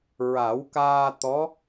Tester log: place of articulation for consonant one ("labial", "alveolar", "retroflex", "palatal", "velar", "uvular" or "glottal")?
alveolar